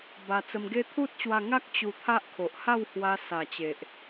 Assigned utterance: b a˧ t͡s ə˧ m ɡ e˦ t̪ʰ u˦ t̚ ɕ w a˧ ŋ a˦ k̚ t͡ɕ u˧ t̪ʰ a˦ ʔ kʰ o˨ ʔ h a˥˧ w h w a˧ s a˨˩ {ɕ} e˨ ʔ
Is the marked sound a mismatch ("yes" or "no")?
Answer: yes